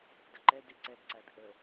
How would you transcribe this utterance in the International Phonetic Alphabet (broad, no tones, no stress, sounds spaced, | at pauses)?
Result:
d ə ǃ ɛ d e ǀ ɛ d ǀ æ d ʔ ə